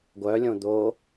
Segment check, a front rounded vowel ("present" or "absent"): present